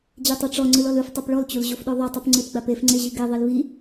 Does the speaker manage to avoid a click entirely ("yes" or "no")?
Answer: no